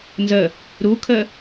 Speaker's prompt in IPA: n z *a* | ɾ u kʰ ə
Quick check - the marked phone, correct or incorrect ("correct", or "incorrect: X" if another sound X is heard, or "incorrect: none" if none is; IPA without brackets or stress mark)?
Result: incorrect: ə